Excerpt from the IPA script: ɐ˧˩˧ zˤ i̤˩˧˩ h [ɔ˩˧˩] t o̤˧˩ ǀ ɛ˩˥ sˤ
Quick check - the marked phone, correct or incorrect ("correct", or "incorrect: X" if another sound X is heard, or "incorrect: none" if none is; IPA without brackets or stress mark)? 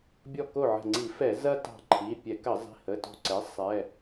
incorrect: ə˩˧˩